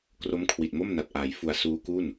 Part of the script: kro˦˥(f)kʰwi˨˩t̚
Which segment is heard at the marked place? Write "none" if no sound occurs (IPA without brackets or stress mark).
m